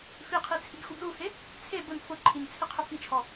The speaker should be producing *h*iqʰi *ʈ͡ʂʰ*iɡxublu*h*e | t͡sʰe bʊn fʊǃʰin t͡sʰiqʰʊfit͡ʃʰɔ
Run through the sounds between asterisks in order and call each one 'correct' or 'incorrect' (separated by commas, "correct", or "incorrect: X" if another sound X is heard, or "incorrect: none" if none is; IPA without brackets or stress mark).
incorrect: f, incorrect: t͡sʰ, correct